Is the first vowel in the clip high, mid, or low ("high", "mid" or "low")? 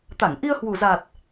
low